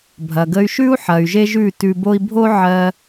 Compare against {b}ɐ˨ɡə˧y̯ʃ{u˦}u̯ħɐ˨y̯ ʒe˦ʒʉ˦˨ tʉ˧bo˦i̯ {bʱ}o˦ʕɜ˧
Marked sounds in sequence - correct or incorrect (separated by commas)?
incorrect, incorrect, correct